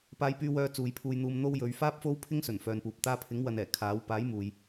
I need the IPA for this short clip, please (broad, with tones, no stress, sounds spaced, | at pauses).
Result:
p aː˧ j p yː˧ w œː˧ t͡s uː˨˧ j pʰ uː˧ j n̪ uː˧ m n̪ o˥ w j ɵ˨˧ ɥ f aː˥ p̚ f o˥ w pʰ ɪ˥ ŋ s ɵ˨˩ n f œː˨ n p uː˨ p̚ t̪ aː˧ pʰ ɪ˨˥ ŋ w ɐ˨ n ɛː˨˩ kʰ aː˨˥ w p aː˨˥ j m uː˨ j